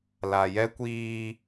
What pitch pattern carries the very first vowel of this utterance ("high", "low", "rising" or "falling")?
low